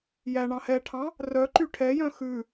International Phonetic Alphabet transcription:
j æ ɳ ɑ̃ h ɛ ʈʰ ɑ̃ | r œ ǃ y ʈʰ ɛ j œ̃ x ʉ

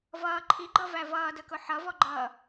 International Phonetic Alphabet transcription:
v ʌː ǃʰ i ɡ͡ǃ ʌ v æ v ʌː d ə k ʊ ħ ʌ v ɔ ɡ͡ǃ ʌː

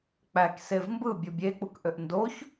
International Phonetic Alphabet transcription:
k͡p æ k s e v m b ɯ bʲ u bʲ e k͡p u k ʔ ø ʔ n d o ç

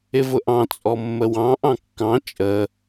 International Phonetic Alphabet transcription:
ɪ v ʊ ʔ ɑ̃ t͡sʼ ɔ mː ə w ɑ̃ ʔ ɑ̃ kː ɑ̃ t͡ʃʼ ə

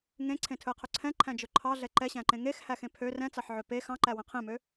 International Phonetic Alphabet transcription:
ŋ ẽ ǀʰ ẽ tʰ ɵ e̯ qʰ ɵ ǀʰ ɛ̃ ǃʰ æ̃ d͡ʒ ɵ ǃʰ ɑ ɮ ɛ ǃ ɛ ɕ æ̃ ǃ ẽ ŋ e x h æ x ẽ pʰ ø r ɛ̃ t͡s ɑ ħ ʕ ø p e x ɑ̃ ǃ æ w ɛ̃ qʰ ẽ m ø

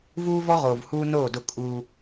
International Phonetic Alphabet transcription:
v uː˦ v ɔ˦ ʁ oː˨ v h uː˦ n oː˦˨ d ʊ˦ kʼ uː˦

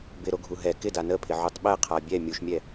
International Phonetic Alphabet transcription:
b ɪ ɾ o ɡʱ u ɦ ɛ k ɪ d a n ə pʰ ɪ ʕ u tˤ ɓ ɛ qʰ a bʲ ɛ mʲ u ʃ mʲ ɛ

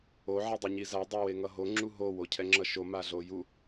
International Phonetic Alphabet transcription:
o ʕ ɛ dˤ i ɲ i z a dˤ ɛ w e ŋ ʌ ɦ o ŋ͡ǁ u ɦ o w o cʰ ɛ ŋ͡ǁ ʌ ʃ o m a ɮ o j u

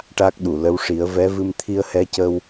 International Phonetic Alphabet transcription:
ʈ a˦˥ k̚ ɗ u˨˩˨ l ə˧˥ w ʂ i˨˩˦ ə̯ v ɛ˧˥ v ɨ˧ m t̪ʰ i˧ ə̯ h ɛ˧˥ c ə˧ w

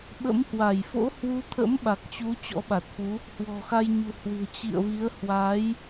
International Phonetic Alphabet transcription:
ɓ ə̰˧˥ m h w a˧˩ j f o̰˧˥ h w u˨˦ t̪ʰ ə̰˧˥ m ɓ a˨˩ k̚ t͡ɕ u˨˦ t͡ɕ ɔ̰˧˥ ɓ a˨˩ t̚ f u˨˦ | h w ɔ̤˨˩ x a˧ j ɲ ṳ˨˩ h w ɨ̤˨˩ ə̯ t͡ɕ ḭ˧˨ ə̯ v i˨˦ ə̯ h w a˨˦ j

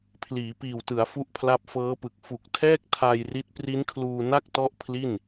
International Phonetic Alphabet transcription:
pʰ l iː˩˦ p iː˨˩ w t ɯ˩˦ a̯ f u˥˩ ʔ pʰ l a˥˩ p̚ f ɤː˦˥ p ɯ˨˩ k̚ f u˨˩ k̚ tʰ ɛː˥˩ k̚ tʰ a˧ j r i˦˥ t̚ p r i˦˥ n kʰ l uː˧ n a˥˩ k̚ t ɔ˦˥ ʔ pʰ l i˥˩ n

